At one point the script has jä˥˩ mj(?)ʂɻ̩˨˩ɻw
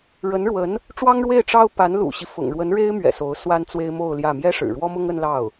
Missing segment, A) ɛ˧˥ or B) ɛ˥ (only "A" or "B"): B